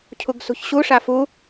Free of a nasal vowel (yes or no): yes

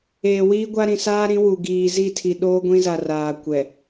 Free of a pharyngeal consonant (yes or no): yes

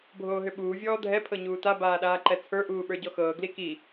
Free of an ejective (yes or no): yes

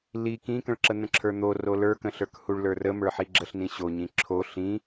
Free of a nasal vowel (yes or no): no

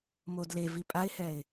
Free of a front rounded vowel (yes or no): yes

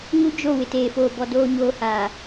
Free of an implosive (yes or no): yes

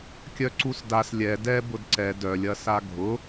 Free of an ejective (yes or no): yes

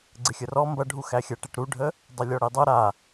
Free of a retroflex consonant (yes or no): no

